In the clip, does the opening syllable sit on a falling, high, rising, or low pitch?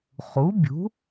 rising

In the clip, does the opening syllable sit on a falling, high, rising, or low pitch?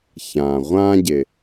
low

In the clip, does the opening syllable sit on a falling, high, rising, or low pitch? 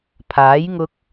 rising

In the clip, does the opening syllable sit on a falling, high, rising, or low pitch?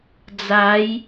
rising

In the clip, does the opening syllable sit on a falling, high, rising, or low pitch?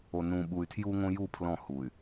low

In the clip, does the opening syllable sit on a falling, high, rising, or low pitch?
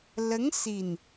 rising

